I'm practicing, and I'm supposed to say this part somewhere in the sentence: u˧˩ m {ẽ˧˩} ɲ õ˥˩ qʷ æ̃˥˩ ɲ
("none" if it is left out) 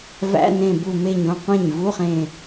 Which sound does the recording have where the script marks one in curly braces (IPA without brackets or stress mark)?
e˧˩